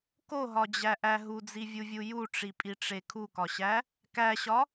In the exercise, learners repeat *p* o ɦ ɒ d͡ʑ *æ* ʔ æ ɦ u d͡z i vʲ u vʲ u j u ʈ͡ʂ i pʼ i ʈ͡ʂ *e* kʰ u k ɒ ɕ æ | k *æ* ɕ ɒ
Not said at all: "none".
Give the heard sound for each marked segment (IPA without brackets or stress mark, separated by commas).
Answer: k, æ, e, æ